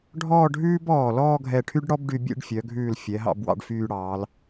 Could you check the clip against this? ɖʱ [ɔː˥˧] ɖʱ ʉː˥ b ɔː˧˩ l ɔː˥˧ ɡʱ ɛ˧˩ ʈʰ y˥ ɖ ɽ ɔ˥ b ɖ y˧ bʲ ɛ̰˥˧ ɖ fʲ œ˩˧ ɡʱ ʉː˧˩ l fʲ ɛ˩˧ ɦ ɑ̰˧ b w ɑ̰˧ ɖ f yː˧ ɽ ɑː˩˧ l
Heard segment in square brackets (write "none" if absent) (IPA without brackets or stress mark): ɔː˥˧